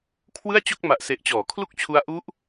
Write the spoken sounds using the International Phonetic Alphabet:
kʰwɯ˥˩a̯t͡ɕo˥˩k̚ ma˨˩ʔse˨˩ʔt͡ɕɔː˩˦ kʰlu˥˩k̚t͡ɕʰu˦˥a̯ ʔu˦˥ʔ

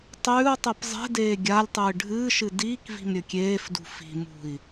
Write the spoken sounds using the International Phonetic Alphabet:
tˤʉːu̯tˤɨp zˤe̤deː ɡʲalʲtˤɨː ɖʱɨːʃɨ diːkvi̤m ɾʲɵkʲeːfdṳ fi̤mṳi̯

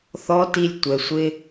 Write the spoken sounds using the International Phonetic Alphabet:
θɔ˧˥ti˧lʲ tʷɛ˩sʷɪ˧

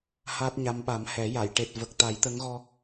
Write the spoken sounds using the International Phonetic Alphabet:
haː˦˥t̚ɲa˧˥m ɓa˨˩˦mhɛ˨˩˦ja˨˩˨j ʈe˨˩t̚ və˨˩k̚t̪a˨˩˦jt̪ə˧˥ŋɣɔ˧

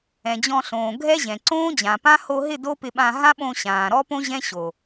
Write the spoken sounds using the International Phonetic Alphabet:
ɛ̃˨d͡ʑɔ̃˧ɬõː˨ ɡʱɛ˦ʑɛ̃˨ ǀõː˦d͡ʑã˨pã˦ ho˧ɦɪ˦˨ do˦pɪ˧ɓã˧ ɦã˦ɓõ˧ ɕãː˨ɾɔ˦põ˦ ʑɛ̃˦ɕo˨

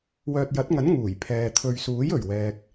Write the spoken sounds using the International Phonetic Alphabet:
wœː˨t̚jɐ˨˥t̚ŋɐ˨˥n ŋuː˨˩jpʰɛː˨ t̪ʰɵ˨ɥsuː˨˥jɵ˨˩ɥ wɛː˧k̚

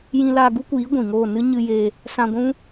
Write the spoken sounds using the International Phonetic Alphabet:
jĩ˧laː˧ ɡu˦kʷiː˨˦ ɡʷĩ˨ŋoː˦˨ nɨ˦ ɲɨ˧ je˧ | sã˧ɡʷũ˦

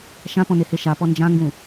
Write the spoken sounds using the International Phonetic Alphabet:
ʃãpɔ̃nehe ʃapɔ nd͡ʒãŋɡũ

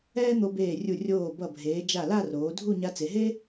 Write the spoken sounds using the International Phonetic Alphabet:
ɛː˥n̪o˧beː˧˩rʲu˧˩ rʲoː˧˩ bʌ˧˩bʱeː˩˧d͡ʒa˧˩ la˥˧roː˩˧dʱu˥˧ ɲa˧t͡se˩˧ɦe˥

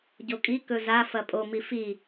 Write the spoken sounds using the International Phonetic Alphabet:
ɟokʼikɵ zafɐ pʼomi fi

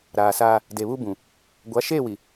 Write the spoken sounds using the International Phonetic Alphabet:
ɾaː˨saː˦ | de˨βu˦bũ˨ | ɡʷa˨˦ʃeː˦˨wi˨

